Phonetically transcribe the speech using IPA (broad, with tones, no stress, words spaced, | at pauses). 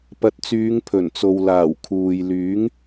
pɐ˨˥t̚t͡syː˨˧ŋ pʰɵ˨˩nt͡so˨w laː˨˩wkʰuː˨j lyː˨˥ŋ